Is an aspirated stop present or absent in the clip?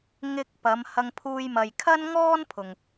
present